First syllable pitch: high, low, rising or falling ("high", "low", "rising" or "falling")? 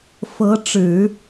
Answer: rising